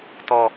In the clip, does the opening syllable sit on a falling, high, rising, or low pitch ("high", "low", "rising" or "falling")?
low